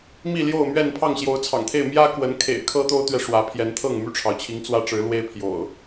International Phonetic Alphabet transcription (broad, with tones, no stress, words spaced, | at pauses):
mi˥˨ljo˥˨ʊ̯mɥɛ˥˨n pʰɑ˥˨ŋɕjo˨˦ʊ̯t͡sʰɑ̰˨˩ŋt̪ʰe˥˨ɪ̯ mjä˦kwə˨˦n kʰḛ˨˩ɪ̯kʰɤ˦t̪o˦ʊ̯t̪ɥɛ˨ ʂwä˨˦pʰjɛ˨˦n t̪ʰɤ˥˨ŋmy˥˨ʈ͡ʂʰɑ˩ʊ̯t͡ɕʰi˨˦ŋ t͡swä˦ʈ͡ʂɻ̩˨˦lwe˦ɪ̯ pʰjo̰˨˩ʊ̯